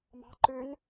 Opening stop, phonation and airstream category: click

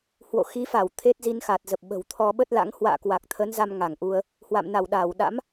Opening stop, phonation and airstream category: aspirated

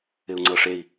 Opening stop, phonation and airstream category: click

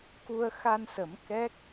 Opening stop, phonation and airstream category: plain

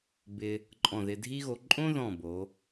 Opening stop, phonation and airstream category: plain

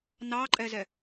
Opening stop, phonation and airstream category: click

